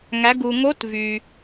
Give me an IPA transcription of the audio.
ŋæ˩˧ɡu˩ŋo˧˥t vy˩

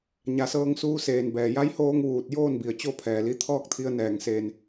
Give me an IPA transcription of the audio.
ɲa˩˧sɤː˧ŋ suː˧seː˩nbɛː˩ ja˧˥jhoː˧ŋ ʋuː˧˩t̚ joː˥˨nbi˩ə̯t͡ɕo˥˨ pʰɛː˩li˧t̪ʰɔː˥˨k̚t̪ʰi˧ə̯ nɛː˩ŋseː˩n

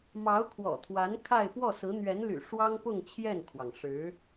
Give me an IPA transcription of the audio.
mɑ˧˥ʊ̯kʰwɔ̰˨˩t̪ʰwa˧˥n kʰa˥˧ɪ̯ pwɔ˥˩sɹ̩˧˥ n̪ɥɛ˧˥nly̰˨˩ ʂwɑ˥ŋpʊ˥˧ŋ t͡ɕʰjɛ˥˩nkʰwɑ˩ŋ ʂɻ̩˧˥

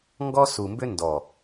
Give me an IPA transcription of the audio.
ŋɡɔ˦su˨mbʏ˦ ndɔ˨

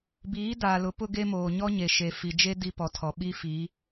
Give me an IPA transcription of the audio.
biː˨˦daː˨lʊ˨˦ pʊ˦ɡe˦moː˨ ɲɔ˦ɲe˨ ʃe˨fi˨d͡ʒe˦ di˦pɔ˨tʰɔ˨ ɓi˦fi˨˦

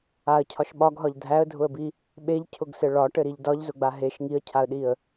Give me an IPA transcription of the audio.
aə̯cʰɒʃ ɓɒɡɦɒʎ dʱæə̯dʱʊə̯bi | ɓeʎcʰʊɡsɘ ɭɒʈɘɾiʎ dɒʎzʊɡ͡ba ɦeʃ ŋiə̯cʰaə̯ɗiə̯

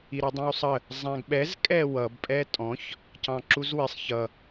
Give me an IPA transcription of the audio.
iɾʌdˤĩwsˤə | zˤæ̃ɡɓɛz kʼɛwʌb pʼɛtʼɔ̃ç | cɑ̃ǁuzwɪsˤ çʌ

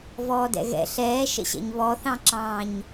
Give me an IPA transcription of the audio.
vɔːdɛ̰ɣɛ̰ ɬɛːʃə̰ɕɛ̰ɲ βɔθɑ̃ǁɑ̃ːɲ

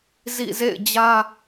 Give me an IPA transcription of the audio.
zḭ˦˨ zḛ˦˨ɪ̯d͡ʑä˦

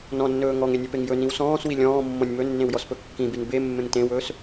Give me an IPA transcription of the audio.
nɔ̃nːɵː ŋɔŋenʲepeŋ jɵnĩw sɔ̃ːswi lʲɔ̃ːmːɔ̃nʲ mɵnːẽwjɔspɵ kːĩbin bemːẽŋ tẽwɵːs

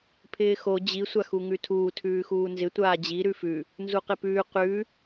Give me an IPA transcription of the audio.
pʰɪːxo d͡ʑi sʷaxuŋʉtʰuː tʰʉːxuːnzɪ tʷaːd͡ʑi ɾʉfʉ | nzuqɪpʉː qʉ

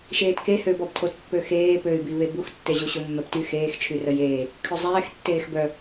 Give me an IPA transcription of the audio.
ʃeːtke høbɔbtʰot pːøxeː pøy̯biβe buxtːeʑuɕu mːɛpty xeːxt͡ʃʰy rəjeː | kʰøzˤɛːx tːeːxbœ

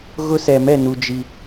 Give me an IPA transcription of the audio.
ɣʊ˦sɛ˨mɛ˦˨ nu˨d͡ʒi˨

